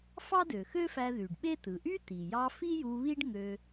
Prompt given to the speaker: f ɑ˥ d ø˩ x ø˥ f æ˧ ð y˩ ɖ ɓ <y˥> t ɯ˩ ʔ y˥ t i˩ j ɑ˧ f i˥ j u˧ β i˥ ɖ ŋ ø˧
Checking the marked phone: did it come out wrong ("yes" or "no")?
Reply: yes